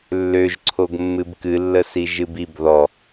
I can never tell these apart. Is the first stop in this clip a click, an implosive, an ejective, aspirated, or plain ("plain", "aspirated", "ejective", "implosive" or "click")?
click